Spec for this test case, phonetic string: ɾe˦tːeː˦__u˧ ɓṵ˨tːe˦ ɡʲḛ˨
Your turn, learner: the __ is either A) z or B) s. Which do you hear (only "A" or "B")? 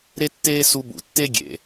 B